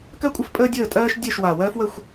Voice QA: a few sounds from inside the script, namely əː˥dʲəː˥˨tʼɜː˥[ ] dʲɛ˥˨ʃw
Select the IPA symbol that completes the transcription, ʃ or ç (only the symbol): ʃ